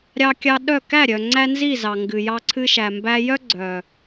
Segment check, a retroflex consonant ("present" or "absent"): absent